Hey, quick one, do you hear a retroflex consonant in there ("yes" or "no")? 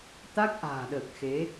no